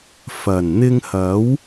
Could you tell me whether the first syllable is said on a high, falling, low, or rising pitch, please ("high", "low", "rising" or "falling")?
low